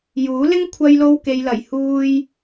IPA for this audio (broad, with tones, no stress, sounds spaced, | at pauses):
j uː˨˥ l ɪ˥ ŋ kʷʰ ɐ˧ j l o˧ w k e˨ j l ɐ˨˩ j h uː˧ j